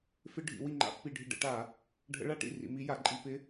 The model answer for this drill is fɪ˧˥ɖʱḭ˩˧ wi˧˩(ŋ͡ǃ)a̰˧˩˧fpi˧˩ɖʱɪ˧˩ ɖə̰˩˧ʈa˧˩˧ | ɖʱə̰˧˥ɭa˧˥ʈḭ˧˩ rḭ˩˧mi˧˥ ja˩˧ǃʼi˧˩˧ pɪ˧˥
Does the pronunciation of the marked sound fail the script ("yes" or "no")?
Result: no